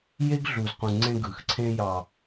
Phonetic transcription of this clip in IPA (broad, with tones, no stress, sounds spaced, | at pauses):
j e˦ ɡ ɮ u˨ z q ũ˨ ŋ͡ǀ ẽ˦ ɡ ɯ˨ x ǀʰ ẽ˦ j ɑ˨